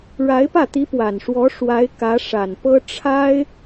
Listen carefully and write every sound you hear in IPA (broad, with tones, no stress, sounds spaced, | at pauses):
ɻ a˧˥ ɪ̯ p ä˥˩ t̪ i˧˥ p w a˨˩ n ʂ w ɔ˧˥ ʂ w a˧˥ ɪ̯ k ä˧˥ ʂ a˨˩ n p ɤ˥ ʈ͡ʂʰ a˥ ɪ̯